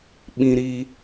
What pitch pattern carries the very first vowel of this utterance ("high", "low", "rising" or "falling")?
high